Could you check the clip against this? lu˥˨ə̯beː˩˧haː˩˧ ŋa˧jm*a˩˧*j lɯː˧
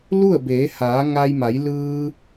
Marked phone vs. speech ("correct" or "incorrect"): correct